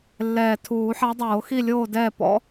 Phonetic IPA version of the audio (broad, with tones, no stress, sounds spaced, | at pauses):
lː ɛː˨˩ tʰ uː˨˩˦ ħ a˧˥ dˤ oː˨˩˦ x i˥˨ lʲ oː˥˨ d ɛː˥˨ p ɔ̰˧˥